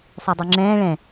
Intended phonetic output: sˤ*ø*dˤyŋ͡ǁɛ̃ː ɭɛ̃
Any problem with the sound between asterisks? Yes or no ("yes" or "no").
no